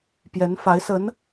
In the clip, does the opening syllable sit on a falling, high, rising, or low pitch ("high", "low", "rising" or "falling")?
rising